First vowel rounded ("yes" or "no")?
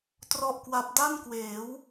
yes